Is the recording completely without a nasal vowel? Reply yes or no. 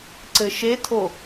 yes